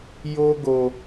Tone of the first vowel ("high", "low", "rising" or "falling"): high